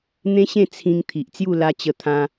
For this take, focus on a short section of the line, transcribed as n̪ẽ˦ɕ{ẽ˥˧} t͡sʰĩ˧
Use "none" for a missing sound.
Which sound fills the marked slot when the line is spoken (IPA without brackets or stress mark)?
ẽ˥˧